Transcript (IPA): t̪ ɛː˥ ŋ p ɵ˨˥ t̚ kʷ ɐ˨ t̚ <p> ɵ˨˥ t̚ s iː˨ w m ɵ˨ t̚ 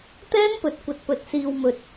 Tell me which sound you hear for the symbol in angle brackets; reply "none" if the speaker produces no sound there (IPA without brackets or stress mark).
p